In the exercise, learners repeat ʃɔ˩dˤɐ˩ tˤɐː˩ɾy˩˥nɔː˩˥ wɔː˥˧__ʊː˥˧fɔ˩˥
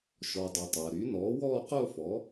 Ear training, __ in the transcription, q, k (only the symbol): q